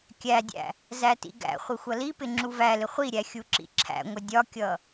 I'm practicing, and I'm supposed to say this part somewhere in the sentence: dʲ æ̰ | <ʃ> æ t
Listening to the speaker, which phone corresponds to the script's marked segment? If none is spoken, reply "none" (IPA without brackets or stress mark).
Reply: z